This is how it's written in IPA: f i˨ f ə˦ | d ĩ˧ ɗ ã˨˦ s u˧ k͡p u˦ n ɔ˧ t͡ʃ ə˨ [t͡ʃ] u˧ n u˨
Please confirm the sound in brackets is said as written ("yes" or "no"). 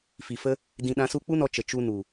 yes